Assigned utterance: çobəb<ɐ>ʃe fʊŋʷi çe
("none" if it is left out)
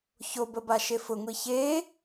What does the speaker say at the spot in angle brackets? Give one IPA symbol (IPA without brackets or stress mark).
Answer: a